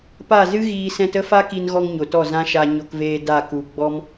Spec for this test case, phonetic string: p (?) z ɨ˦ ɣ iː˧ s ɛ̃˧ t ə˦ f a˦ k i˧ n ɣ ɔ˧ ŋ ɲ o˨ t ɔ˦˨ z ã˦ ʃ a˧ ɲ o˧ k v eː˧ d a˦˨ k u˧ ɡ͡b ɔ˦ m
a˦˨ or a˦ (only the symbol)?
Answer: a˦˨